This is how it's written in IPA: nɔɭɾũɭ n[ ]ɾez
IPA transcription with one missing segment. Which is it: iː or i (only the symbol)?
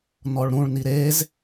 i